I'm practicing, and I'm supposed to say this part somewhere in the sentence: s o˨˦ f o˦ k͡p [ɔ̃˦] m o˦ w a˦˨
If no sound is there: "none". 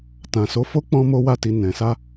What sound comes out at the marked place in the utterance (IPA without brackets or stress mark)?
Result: ɔ̃˦